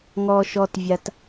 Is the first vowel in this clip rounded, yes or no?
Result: yes